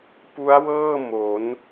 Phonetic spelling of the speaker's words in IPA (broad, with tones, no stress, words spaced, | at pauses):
pu˦˥a̯wɤː˥˩ mo˩˦n